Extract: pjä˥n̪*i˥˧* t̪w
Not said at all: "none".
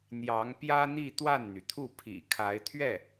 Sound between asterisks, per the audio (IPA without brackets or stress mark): i˥˧